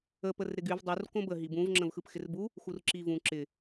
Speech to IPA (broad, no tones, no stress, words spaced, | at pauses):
ə pərɾɪɡyv dˤur kõbə ɦibũv ŋ͡ǁə̃vxɯpxɪrbu | xurǁivũ ǁɪ